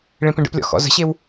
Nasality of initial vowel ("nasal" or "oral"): nasal